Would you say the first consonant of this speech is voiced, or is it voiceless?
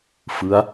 voiceless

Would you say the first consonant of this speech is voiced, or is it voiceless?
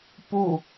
voiceless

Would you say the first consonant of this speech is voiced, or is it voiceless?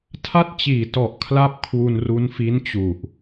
voiceless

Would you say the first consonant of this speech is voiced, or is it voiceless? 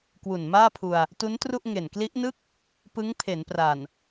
voiceless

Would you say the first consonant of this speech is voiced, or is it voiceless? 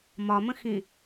voiced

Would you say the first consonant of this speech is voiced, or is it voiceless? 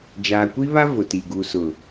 voiced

